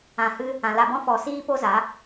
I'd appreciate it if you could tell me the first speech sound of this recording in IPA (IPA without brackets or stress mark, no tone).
ã